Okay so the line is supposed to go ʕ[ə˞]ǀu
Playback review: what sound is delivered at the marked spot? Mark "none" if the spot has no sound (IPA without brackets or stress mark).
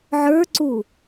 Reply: ə˞